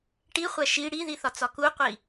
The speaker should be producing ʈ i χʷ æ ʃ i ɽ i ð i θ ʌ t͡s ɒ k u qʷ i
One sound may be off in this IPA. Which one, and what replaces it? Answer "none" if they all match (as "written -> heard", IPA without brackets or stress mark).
ʌ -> ɒ